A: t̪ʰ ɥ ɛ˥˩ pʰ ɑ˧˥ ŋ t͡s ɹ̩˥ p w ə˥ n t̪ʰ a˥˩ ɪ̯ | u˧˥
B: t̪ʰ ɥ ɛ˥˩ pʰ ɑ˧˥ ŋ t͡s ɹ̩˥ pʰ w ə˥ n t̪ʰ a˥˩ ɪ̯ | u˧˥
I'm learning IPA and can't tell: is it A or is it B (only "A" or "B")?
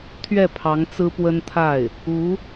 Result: A